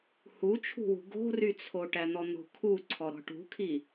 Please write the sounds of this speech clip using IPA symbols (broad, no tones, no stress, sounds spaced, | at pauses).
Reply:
h u t͡ʃʰ ṳ w ṳ ɡ o̤ r y t͡sʰ o ʈ æ n̪ ɔ n̪ o̤ kʰ u ǀʰ ɔ ɾ ɔ̤ ʈ ṳ kʰ i